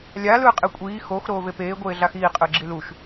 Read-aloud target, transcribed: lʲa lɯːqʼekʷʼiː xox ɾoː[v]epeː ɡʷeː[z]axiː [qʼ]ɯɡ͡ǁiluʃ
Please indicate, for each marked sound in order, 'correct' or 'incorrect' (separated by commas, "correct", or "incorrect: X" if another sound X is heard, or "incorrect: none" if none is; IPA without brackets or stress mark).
correct, incorrect: ɮ, correct